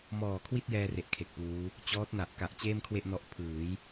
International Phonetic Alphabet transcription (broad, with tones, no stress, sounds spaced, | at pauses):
m ɔː˨˩ kʰ w i˥˩ t̚ j ɛː˧ r e˦˥ ʔ kʰ e˨˩ k̚ p uː˦˥ | t͡ɕ ɔː˦˥ t̚ n a˨˩ ʔ k a˨˩ ʔ t͡ɕ eː˥˩ m kʰ w e˥˩ ʔ n ɔ˦˥ ʔ pʰ ɯː˩˦ j